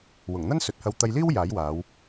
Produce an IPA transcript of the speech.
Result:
w ʊ˨˩ ŋ n̪ ɐ˥ n s ɵ˨˥ t̚ h ɐ˧ w t̪ ɐ˧ j l iː˥ w j aː˨˥ j w aː˨˧ w

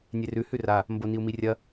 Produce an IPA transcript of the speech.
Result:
nʲ e r ʉ h ʉ r a | m b o n i u̯ m i rʲ ɐ

